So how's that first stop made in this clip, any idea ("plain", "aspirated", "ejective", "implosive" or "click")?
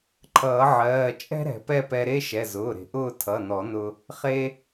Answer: click